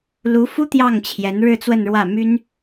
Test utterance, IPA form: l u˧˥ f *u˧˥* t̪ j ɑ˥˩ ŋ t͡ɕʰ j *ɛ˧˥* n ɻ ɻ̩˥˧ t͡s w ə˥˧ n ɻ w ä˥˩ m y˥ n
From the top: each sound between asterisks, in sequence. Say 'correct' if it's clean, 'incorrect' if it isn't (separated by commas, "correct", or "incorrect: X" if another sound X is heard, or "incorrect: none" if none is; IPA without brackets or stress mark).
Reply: incorrect: u˥, correct